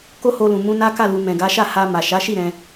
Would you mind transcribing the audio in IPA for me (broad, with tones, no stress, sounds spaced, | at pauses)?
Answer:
k o˦ h o˧ l ũ˨ m ũ˧ n a˦ k a˦˨ l u˨ m ɛ̃˨ ɡ a˨˦ ʃ a˦˨ h a˧ m a˨ ʃ a˨˦ ʃ i˦˨ ɾ ɛ̃˧